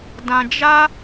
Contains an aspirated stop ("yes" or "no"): no